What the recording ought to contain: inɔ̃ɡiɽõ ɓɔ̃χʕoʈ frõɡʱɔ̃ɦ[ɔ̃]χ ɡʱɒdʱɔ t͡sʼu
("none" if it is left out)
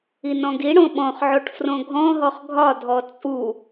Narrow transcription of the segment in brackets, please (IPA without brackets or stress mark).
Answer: ɔ